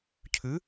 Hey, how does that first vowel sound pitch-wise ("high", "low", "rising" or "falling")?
rising